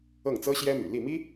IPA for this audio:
ɤ˥˩ ŋ t͡s ɤ˥ ɕ j ɛ˥ m y̰˨˩ l i˥˩ m i˥

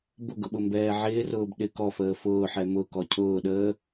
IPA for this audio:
b ʊ ɡ ʊ ɓ ʊ m b ɛː ʕ ɪː r ʊː b ɗ ɪ k ɔ f əː f ʊː ħ ɛ m ʊ k ɔ cʰ ʊː ɗ əː

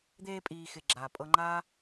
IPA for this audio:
d̪ eː˧ pʼ iː˨ x ɪ˧ ɡ͡ǁ aː˨ pʼ ɤ˦ ŋ͡ǃ aː˦

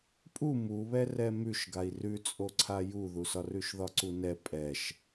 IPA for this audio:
pʼ u m u β ɛ r ɛ m ʉ ʃ ɡ a i̯ r ʉ t͡sʼ o ǀʰ a j u ð u s ɒ r ʉ ʃ ð ɒ ǀ u n ɛ pʼ ɛ ʃ

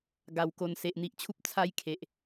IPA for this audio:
ɡ a˨˩ w k o˨˩ n s e˨ ʔ n̪ i˨ ʔ t͡ɕʰ u˦ p̚ t͡sʰ a˦ j kʰ e˨ ʔ

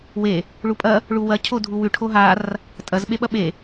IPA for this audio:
w e | ɭ u pʼ ɐ | ɭ u w ɐ cʰ o dʱ u w ʉ ʈʰ o ɦ a r | tʼ ɐ z ɓ e ɓ ɐ ɓ e

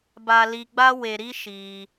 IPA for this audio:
b a˧ l i˧ ɡ͡b a˦ w e˧ ɾ i˦ ʃ i˧

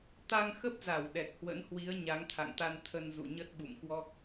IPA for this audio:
t̪ a˧ ŋ x ə˦˥ p̚ z a˧˩ w ɗ ɛ˨˩ k̚ h w ə̰˧˥ n h w i˨˦ ə̯ ɲ a˨˦ ŋ t̪ʰ a̰˧˨ ŋ t̪ a˧ n t̪ʰ ə˧ n z ṵ˧˨ ɲ ə˦˥ t̚ ɓ ṵ˧˨ m k w ɔ˦˥ k̚

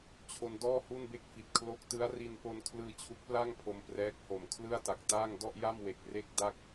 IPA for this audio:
t͡ɕʰ o˧ n d ɔː˥˩ h u˥˩ n b e˥˩ k̚ f i˨˩ t̚ kʰ l o˦˥ k̚ t ɯ˦˥ a̯ r i˧ n p o˧ n kʰ l ɯː˧ t͡ɕʰ u˦˥ k̚ p l a˥˩ ŋ pʰ o˧ m p r ɛː˦˥ k̚ h o˨˩ m kʰ l ɯ˥˩ a̯ t a˨˩ k̚ t aː˥˩ ŋ d ɔ˥˩ ʔ j a˥˩ m w e˨˩ k̚ r e˥˩ k̚ d a˥˩ k̚

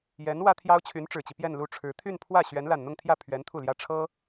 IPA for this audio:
j ɛ˧˥ n w ä˥ t̪ʰ j ɑ˥ ʊ̯ t͡ɕʰ y˧˥ n ʈ͡ʂ ɻ̩˨˩ t͡ɕ i˦ p j ɛ˥˧ n l u˥˩ ʈ͡ʂʰ ɻ̩˧˥ t̪ʰ y˥˧ n pʰ w ä˥˩ ɕ ɥ ɛ˧˥ n l a˨˩ n n̪ ʊ˥˧ ŋ t̪ʰ j ä˥˩ pʰ ɥ ɛ˧˥ n t̪ʰ u˥˩ l j ä˥ ʈ͡ʂʰ ɤ˥

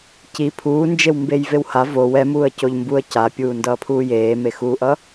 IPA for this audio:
c i pʰ uː n d͡ʒ e w m b e j v e w h a v o w ɛ m uː ə̯ c o ʎ m b u ə̯ c a pʲ uː n d ʌː pʰ uː j eː m e x uː ʔ ʌ

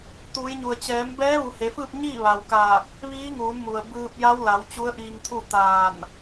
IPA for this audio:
t̪ uː˩˧ j ɲ u˩ ə̯ t͡ɕ ɛː˩˧ m b ɛː˧˥ ʋ u˩˧ h e˩˧ f ɯː˥˨ p̚ ɲ iː˥˨ ʋ a˩ w k aː˧˩ k̚ | ʋ iː˧˥ ŋ uː˩˧ n m u˩ ə̯ b ɯː˧ p̚ j a˧˥ w l a˩˧ w t͡ɕ u˧˥ ə̯ ʔ iː˧ ŋ t̪ʰ u˥˨ t̪ aː˧˩ n

